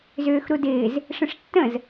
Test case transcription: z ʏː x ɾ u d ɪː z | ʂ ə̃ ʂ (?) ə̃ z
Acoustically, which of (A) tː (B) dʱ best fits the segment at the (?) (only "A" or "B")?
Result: A